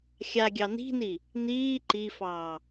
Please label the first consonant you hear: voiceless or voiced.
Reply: voiceless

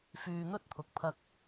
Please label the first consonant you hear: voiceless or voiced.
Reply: voiceless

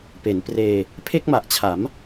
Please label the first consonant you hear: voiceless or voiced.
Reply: voiceless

